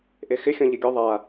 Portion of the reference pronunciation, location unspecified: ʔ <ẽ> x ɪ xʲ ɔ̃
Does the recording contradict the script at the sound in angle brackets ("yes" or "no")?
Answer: yes